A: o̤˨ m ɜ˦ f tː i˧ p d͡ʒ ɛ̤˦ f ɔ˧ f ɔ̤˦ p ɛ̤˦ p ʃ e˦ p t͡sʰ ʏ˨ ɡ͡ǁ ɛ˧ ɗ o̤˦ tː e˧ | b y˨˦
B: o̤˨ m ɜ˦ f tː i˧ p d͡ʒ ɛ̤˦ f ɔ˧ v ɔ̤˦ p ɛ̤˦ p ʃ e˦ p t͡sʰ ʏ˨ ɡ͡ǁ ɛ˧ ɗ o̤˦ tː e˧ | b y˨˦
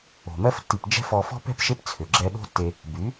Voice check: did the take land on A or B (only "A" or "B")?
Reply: A